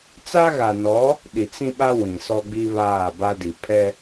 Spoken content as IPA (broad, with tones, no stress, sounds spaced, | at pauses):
t͡s a˦ ɣ a˨ n ɔ˨˦ | ɗ i˨ t͡s ĩ˦ ɓ a˦ w ĩ˨ s ɔ˦ ɡ͡b i˦ β aː˦˨ b a˦ d i˨ pʰ ɛ˦